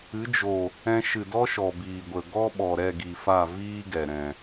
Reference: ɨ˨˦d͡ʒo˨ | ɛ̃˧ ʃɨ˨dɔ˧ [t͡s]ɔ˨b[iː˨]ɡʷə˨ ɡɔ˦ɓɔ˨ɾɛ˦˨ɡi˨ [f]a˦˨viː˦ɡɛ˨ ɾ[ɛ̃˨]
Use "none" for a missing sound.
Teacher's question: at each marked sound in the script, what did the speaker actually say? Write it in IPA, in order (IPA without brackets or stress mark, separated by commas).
ʃ, iː˨, f, ɛ̃˨